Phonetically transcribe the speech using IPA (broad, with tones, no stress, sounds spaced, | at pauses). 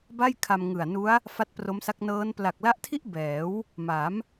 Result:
b a˥˩ j kʰ a˧ m ŋ ɯ˨˩ a̯ n u˦˥ a̯ | f a˦˥ t̚ p r o˦˥ m s a˦˥ k̚ n ɤː˦˥ n p l a˨˩ k̚ l a˦˥ ʔ tʰ i˥˩ ʔ b ɛː˩˦ w | m a˩˦ m